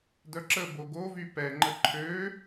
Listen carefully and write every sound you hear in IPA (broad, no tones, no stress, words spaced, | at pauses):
dœǁəbo ɡovy pɛŋ͡ǃə ǃʰø